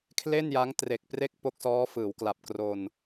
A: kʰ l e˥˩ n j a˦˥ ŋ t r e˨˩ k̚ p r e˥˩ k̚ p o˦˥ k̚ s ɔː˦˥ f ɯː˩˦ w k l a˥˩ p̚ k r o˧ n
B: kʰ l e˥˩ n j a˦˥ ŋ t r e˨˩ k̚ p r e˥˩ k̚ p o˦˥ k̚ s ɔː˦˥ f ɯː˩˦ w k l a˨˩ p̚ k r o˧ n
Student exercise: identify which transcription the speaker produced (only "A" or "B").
B